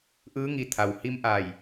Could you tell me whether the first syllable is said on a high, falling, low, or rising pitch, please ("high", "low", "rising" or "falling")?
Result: rising